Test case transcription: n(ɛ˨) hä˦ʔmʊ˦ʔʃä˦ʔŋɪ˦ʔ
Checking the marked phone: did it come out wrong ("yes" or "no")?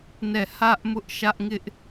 yes